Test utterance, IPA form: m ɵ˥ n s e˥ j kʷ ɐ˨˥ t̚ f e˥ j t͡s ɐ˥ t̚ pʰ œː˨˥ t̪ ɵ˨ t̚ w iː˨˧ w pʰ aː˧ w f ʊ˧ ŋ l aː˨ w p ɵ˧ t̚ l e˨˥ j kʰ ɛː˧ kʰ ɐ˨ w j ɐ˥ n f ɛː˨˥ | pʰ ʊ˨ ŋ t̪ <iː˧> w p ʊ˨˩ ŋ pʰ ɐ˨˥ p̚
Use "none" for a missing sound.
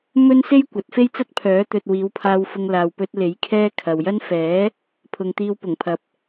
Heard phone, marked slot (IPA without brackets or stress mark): iː˧